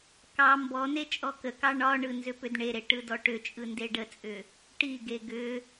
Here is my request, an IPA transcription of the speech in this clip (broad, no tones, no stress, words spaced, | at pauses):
kɑ mbɔne t͡ʃʼɔkəkɑ ɳɒɳɯ nzʏpʏdɳeɾe ʈɯdɔʈʏt͡ʃʼɯ ndeɖət͡sʼʏ | ʈiɡe ɡʏ